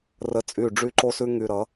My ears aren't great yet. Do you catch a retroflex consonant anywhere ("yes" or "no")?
yes